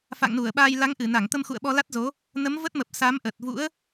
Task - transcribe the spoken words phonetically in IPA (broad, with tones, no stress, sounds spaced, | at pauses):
f a̰˧˨ ŋ n u˧˩ ə̯ ɓ aː˧ j l a˨˦ ŋ ʔ ɨ˧˩ n a˧˩ ŋ t̪ ə˧ m x ṵ˧˨ ə̯ ɓ ɔ˧ l a˦˥ t̚ z o˨˦ | n ə˨˦ m v ə˦˥ t̚ m ə˨˩ p̚ s a˨˦ m ʔ ə˨˩ t̚ v ṵ˧˥ ə̯